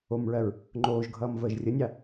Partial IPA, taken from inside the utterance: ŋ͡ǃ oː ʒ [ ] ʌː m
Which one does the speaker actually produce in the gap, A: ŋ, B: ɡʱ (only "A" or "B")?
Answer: B